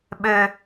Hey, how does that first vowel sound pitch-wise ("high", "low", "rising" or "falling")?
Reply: low